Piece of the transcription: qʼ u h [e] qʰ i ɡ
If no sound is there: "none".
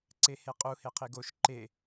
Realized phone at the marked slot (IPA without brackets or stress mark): e